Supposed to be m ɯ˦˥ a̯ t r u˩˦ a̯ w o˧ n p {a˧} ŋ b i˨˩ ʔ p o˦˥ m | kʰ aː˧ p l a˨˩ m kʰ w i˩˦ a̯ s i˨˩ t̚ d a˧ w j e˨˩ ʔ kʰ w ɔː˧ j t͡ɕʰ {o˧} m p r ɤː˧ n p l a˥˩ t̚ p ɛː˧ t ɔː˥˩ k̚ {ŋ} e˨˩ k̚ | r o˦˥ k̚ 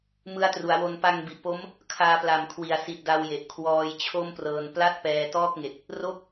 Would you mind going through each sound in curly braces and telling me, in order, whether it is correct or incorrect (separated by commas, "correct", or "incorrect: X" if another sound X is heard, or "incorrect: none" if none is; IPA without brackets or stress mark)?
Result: correct, incorrect: o˥˩, correct